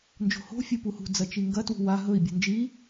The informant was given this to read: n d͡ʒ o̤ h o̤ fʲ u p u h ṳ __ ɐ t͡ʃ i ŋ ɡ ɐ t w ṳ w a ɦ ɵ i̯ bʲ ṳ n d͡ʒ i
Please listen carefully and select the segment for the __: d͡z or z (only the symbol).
d͡z